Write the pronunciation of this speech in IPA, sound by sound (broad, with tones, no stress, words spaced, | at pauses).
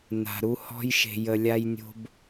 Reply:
na̤˨ ɾu˧hɔ̤˧j ʃe̤˨jə˨ lʲa˧jnʲo̤˧b